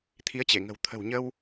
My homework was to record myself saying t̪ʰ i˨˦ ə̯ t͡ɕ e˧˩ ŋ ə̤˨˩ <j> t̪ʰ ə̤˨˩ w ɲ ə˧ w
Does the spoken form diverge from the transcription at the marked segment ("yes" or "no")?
yes